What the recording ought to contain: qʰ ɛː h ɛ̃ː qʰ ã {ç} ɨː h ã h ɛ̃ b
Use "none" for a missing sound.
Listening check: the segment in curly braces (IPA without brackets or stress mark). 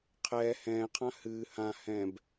h